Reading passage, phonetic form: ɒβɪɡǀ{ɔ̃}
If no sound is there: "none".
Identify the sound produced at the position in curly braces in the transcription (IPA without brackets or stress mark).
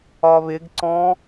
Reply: ɔ̃